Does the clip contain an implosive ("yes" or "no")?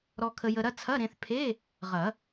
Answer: no